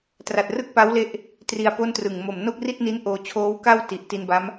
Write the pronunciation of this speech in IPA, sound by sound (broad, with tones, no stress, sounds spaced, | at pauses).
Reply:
t r a˨˩ t̚ r ɯ˥˩ k̚ p a˦˥ w l e˦˥ ʔ | t r i˧ a̯ p o˥˩ n t r ɯ˨˩ ŋ m o˨˩ m n o˥˩ k̚ r i˥˩ t̚ n i˦˥ n ʔ oː˧ t͡ɕʰ oː˦˥ w k a˥˩ w t i˨˩ ʔ t i˧ n b a˦˥ m